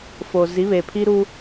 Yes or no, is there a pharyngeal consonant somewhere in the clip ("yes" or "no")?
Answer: no